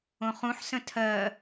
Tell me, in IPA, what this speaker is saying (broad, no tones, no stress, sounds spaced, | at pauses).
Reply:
õ χ ũ ħ s ə̃ tʰ ɜ